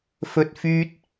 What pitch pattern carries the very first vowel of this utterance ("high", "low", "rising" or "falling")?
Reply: low